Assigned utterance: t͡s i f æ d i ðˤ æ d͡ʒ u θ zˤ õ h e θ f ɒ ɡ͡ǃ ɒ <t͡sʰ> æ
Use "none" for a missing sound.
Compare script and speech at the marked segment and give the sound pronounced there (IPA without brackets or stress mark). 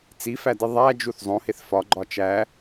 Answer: t͡ʃ